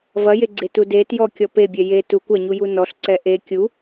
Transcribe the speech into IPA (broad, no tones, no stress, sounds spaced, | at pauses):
v ɐ j e ɡ͡ǀ e t u d e t j ɔ kʲ ɔ p e bʲ ɛ j e t u kʷ ɐ ɲ u j u n ɔ ɬ ǀ ɛ ʔ e kʲ u